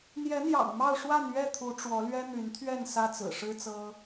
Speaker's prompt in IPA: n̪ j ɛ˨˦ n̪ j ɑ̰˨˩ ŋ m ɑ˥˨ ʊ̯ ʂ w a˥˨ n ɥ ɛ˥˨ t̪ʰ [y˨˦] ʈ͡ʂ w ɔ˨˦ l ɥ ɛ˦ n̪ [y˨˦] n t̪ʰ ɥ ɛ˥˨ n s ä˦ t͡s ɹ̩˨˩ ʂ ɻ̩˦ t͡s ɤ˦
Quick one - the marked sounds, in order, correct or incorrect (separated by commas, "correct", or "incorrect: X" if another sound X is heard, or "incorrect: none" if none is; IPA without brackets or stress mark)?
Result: incorrect: u˨˦, correct